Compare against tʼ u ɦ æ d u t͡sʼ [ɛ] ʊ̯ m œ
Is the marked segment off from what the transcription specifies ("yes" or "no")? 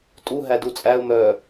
yes